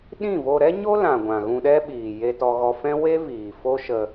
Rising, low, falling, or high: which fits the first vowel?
falling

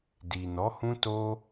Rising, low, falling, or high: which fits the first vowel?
low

